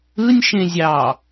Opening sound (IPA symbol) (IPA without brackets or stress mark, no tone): ɯ